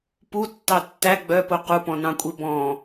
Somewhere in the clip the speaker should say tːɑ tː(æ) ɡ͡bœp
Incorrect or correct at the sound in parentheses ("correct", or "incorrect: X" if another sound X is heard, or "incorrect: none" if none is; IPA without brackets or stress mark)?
correct